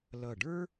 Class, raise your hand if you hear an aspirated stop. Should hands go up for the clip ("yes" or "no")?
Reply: no